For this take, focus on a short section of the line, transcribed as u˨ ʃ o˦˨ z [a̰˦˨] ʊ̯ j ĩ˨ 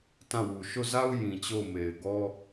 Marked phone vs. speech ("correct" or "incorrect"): incorrect